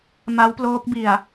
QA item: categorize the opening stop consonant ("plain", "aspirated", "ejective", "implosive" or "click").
plain